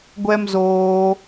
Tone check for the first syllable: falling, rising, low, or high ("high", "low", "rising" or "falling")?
high